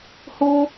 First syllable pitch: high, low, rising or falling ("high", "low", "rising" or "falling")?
high